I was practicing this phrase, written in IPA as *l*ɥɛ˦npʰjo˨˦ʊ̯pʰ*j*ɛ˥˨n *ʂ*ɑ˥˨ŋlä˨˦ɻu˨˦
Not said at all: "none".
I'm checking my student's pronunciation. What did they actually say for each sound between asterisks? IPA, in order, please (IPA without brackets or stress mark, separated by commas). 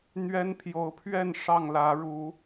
n̪, ɥ, ʂ